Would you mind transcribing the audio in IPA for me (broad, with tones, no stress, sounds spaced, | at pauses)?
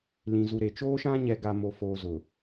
l ĩ˨ z u˨ ɾ e˨ t͡ʃ oː˦ ʃ ã˦ ɲ ɛ˨ ɡ a˨ m o˨ f oː˨ z ʊ˨